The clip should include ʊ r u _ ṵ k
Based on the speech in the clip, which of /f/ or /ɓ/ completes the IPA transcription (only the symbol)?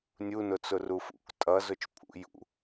f